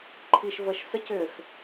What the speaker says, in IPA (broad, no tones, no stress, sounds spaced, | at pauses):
ǃʰ i ʃ v ə ʃ s ə c ʏ x